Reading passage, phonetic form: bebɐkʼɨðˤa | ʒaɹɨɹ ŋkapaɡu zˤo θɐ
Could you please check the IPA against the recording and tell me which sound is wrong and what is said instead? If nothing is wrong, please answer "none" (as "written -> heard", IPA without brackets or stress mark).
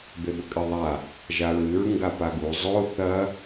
k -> ɡ